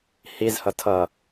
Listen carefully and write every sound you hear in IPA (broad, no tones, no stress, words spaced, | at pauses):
hizhʌ tʰʌ